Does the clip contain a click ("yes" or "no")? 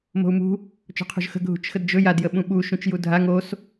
no